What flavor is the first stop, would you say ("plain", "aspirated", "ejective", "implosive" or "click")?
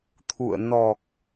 aspirated